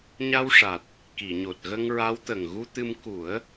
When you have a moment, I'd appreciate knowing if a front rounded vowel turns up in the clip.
no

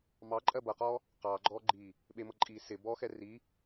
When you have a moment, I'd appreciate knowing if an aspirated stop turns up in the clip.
no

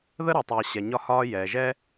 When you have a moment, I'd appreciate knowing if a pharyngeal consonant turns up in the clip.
no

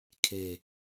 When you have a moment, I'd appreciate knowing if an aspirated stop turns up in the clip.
yes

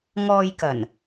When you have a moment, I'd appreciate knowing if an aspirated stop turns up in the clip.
no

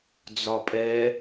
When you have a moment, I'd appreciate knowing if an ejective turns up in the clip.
yes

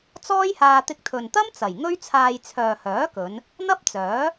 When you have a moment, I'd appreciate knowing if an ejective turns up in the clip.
no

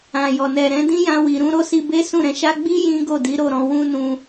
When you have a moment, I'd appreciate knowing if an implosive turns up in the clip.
no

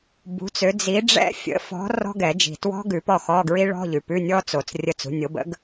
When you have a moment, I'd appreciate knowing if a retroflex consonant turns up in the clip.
yes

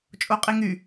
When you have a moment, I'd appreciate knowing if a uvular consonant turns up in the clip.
yes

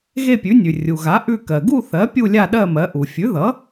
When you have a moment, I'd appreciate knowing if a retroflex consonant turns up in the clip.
no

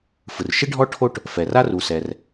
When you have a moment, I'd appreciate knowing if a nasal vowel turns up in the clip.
no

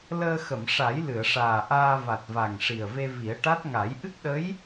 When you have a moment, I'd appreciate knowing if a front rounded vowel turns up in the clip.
no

